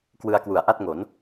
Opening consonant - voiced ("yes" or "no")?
no